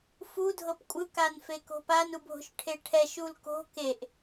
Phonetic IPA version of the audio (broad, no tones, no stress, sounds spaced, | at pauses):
f u dʱ ɤ p kʷʼ ɯ k a n f e k o̤ p a n u bʱ o̤ ʃ ʈʰ e ʈʰ ɛ ʃ u l k o̤ k e ʔ